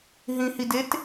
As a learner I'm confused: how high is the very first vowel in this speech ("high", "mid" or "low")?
high